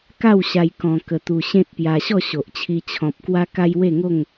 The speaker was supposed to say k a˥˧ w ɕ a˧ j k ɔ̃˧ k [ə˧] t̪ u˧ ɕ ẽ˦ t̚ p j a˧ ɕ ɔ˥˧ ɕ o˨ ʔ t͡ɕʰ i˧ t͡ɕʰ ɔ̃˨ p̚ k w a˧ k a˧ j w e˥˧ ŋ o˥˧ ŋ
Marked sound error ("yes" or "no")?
no